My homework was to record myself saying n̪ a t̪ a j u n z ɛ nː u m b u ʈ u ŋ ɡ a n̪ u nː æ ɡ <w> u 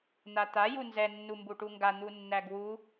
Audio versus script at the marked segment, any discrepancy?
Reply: no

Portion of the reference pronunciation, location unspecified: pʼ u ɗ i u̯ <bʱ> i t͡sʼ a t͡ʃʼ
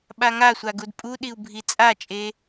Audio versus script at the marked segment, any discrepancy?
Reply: no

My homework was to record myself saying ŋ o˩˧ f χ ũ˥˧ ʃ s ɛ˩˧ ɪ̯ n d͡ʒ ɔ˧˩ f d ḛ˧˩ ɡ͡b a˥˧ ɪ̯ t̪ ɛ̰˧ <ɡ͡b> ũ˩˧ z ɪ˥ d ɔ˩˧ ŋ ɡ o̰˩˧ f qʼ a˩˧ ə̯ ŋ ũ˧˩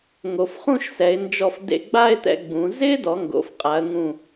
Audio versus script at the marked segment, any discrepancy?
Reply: no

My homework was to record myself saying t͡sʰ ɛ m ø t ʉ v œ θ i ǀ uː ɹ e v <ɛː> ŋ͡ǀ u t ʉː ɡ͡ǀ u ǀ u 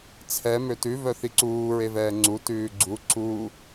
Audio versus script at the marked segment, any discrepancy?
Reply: no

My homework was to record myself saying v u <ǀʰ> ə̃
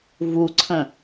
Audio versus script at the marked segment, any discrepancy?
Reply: no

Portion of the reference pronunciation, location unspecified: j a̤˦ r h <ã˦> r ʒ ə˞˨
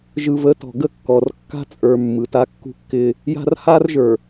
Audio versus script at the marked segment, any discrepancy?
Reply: yes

